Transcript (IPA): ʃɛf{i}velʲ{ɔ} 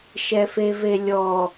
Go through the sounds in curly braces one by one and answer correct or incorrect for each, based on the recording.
incorrect: e, correct

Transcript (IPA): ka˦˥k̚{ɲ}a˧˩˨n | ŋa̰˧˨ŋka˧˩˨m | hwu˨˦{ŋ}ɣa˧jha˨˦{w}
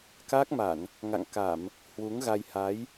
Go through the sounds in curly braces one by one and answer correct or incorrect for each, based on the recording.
incorrect: m, correct, incorrect: j

